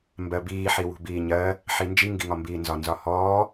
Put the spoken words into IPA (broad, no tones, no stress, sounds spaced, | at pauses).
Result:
m b ɜ b iː ħ i w ṳ b iː ɲ ɜ | ħ i n d͡ʒ i ŋ ɡ i ŋ ɒ m b iː n z ɒ n z ɒ h ɔː